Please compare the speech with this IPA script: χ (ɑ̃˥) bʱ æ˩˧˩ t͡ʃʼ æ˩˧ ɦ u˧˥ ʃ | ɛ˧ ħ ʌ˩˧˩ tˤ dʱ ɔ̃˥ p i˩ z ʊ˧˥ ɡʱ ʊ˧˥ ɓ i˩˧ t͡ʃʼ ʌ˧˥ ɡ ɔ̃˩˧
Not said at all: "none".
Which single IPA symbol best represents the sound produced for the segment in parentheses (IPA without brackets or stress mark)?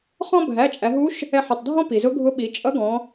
ɔ̃˥